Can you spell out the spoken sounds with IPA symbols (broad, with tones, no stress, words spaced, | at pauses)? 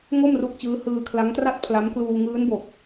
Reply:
ŋo˥˩mru˦˥k̚t͡ɕɯː˦˥ hɯː˧kʰla˦˥ŋtra˥˩t̚ pʰla˦˥m kluː˧ŋɯː˦˥nbo˨˩k̚